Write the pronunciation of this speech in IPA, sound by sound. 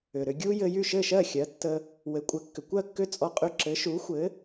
ʏ˩ ɾ ʏ˧ ɡʲ u˥ j ɘ˧ j y˥˩ ʃ ɘ˥˩ ʃ ɜ˥˩ xʲ ɜ˩˥ tː ə˧ | w ɘ˩˥ kʷʼ ɘ˩˥ kː ʏ˩ kʷ ɜ˥˩ kː ʏ˥˩ t͡sʼ ɔ˧ qʼ y˧ ǁ ɘ˩˥ ʃ u˩˥ xʷ ɘ˩˥

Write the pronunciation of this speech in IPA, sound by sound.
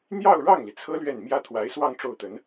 n̪ j ɑ˥˧ ʊ̯ ɻ ɑ˥˩ ŋ l i˩ t͡sʰ ɤ˥ l ɥ ɛ˥˩ n m j ä˥ t̪ʰ w a˧˥ ɪ̯ s w ɑ˥˧ ŋ ʈ͡ʂ o˥˩ ʊ̯ t̪ ə˧˥ n

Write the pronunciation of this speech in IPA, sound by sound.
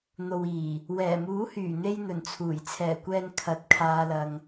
n̪ o˨ w iː˨˩ | w ɛː˨˩ m uː˨˥ h yː˨˩ n̪ e˧ j n̪ ɵ˨˩ n t͡sʰ uː˨˩ j t͡sʰ ɛː˨˩ kʷ ɛː˨ n kʰ ɐ˨˥ t̚ kʰ aː˧ l ɐ˧ ŋ

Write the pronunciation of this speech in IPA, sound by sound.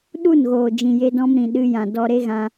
ɗ u˦˨ n ɣ oː˨ d͡ʒ ĩ˨ j e˧ d ɔ̃˧ m ɾ ĩ˨ ɗ ɨ˧ j ã˨ d ɔ˧ ɾ e˦ ɣ ã˧

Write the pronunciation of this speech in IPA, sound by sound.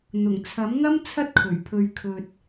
n̪ ʊ˨˩ ŋ t͡sʰ ɐ˨˥ m ŋ ɐ˥ m t͡sʰ ɐ˥ t̚ kʰ ɵ˨˩ ɥ pʰ ɵ˨ ɥ kʰ ɵ˨ t̚

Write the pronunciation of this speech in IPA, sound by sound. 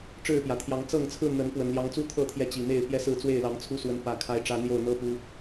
ʈ͡ʂ ɻ̩˥˨ p j ä˨˩ t̪ʰ j ɑ˨˦ ŋ t͡s ɤ˥˨ ŋ t͡sʰ ɹ̩˥˨ n̪ ə˨˦ n p w ə˨˩ n l j ɑ˨˦ ŋ t͡s u˥˨ t̪ʰ ɤ˥˨ t̪ʰ j ɛ˨˦ t͡ɕ i˨˩ n̪ e˥˨ ɪ̯ p j ɛ˦ s ɹ̩˥˨ t͡s w e˥˨ ɪ̯ l ɑ˨˦ ŋ t͡sʰ u˦ s w ə˨˦ n p ä˨˩ kʰ a˨˦ ɪ̯ ʈ͡ʂ ä˨˦ n̪ j o˥˨ ʊ̯ n̪ ɤ˦ p u˨˦

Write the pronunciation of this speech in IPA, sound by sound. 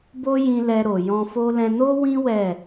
b o˦ j ĩ˧ l ɛ˧ ɾ o˨ j ɔ̃˧ f o˦ l ɛ̃˧ n o˦ w ĩ˦ w ɛ˦˨

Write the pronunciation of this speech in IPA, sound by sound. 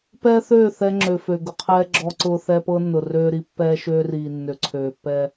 p ɛː˦ θ øː˦˨ θ ɛ˦ ŋ͡ǁ ø˨ f ø˨ ɡ ʊ˨ qʰ ɛː˦ ɡ͡ǁ ɔ˦ ǀ ʊː˦ θ ɛ˦ p ɤ˦ nː ʊ˨ r øː˦ ɾ i˦ pː ɛː˦ ʃ øː˦ r iː˨ nː ø˨ ǀʰ øː˨ pː ɛ˦

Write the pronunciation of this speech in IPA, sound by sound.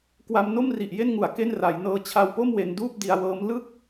k w a˧ m n o˥˩ m r i˨˩ ʔ j e˥˩ n ŋ u˨˩ a̯ k e˥˩ n r a˩˦ j n ɤː˧ t͡ɕʰ a˧ w p o˥˩ m w e˧ n d uː˥˩ p̚ d i˧ a̯ w ɤː˦˥ m l ɯ˥˩ k̚

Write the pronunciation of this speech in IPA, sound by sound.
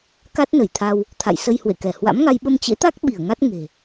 k a˦˥ t̚ n ə˧˩ j t̪ʰ a˧ w | t̪ʰ a̰˧˨ j s ə˧ j h w ḛ˧˨ k ɛ˧˩ h w a̰˧˥ m ŋ a˧ j ɓ ə˧ m t͡ɕ ḛ˧˥ t̪ a˦˥ k̚ ɓ i˧˩ ə̯ ŋ a˦˥ t̚ ŋ e̤˨˩

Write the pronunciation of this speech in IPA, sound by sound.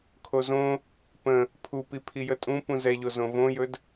kʰ o z õ | p ə̃ | pʰ u p i pʰ i j ə tʼ ũ p ũ z ɛ ʎ o z õ v õ j ɵ d

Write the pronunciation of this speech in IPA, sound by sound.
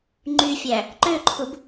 ŋ͡ǃ y fʲ æ | ǃ ø ǃʰ u b

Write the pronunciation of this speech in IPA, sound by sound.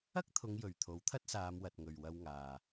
ɐ˥ k̚ t̪ʰ ʊ˨˧ ŋ j ɵ˨ ɥ t̪ʰ o˨˥ w t̪ʰ ɐ˥ t̚ s aː˨˧ m w ɐ˨ t̚ ŋ ɵ˨ ɥ w ɐ˧ w ŋ aː˨

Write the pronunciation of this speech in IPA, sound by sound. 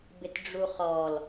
b ɪ t ɖ͡ʐ u χ ɔ l

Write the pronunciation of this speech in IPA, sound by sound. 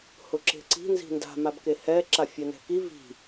h ʊ ǁ e̤ ǀ i̤ n z i̤ n d a̤ m a b k e h ɛ ǁ a fʲ ɛ n ɛ̤ k i v i̤

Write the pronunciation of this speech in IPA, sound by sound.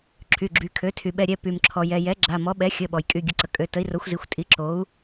ǁʰ y˩˧˩ ɡ͡ǁ y˩˧˩ kʰ ø˩˥ tʰ y˩ ɓ ɛ˩˧˩ ɾʲ ɛ˩˧˩ p y˩ m ǁʰ ɔ˩ j ɛ˩ j ɛ˩˥ ɡ͡ǁ a˩˧˩ m ɔ˩˥ ɓ ɛ˩˥ xʲ ə˩˧˩ ɓ ɔ˩ j kʼ y˩˧˩ ɡʲ ə˩˥ ǀ ə˩ kʼ ø˩˧˩ t ə˩˥ i̯ r o˩˥ xʷ z i˩˧˩ xʷ tʼ i˩˥ ǁ o˩˥ u̯

